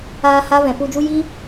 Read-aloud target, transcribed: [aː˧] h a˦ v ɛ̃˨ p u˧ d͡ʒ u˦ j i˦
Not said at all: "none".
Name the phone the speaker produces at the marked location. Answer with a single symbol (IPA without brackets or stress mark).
aː˧